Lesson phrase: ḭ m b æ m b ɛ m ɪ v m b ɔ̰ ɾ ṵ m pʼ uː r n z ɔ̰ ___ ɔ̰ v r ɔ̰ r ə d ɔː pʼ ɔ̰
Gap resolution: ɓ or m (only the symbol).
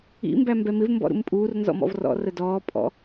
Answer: m